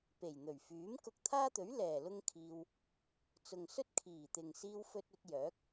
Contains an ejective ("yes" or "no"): no